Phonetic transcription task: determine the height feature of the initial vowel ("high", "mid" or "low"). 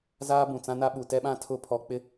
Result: low